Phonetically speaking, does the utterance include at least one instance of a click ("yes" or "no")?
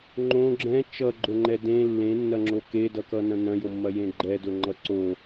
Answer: yes